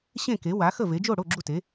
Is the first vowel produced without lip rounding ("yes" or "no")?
yes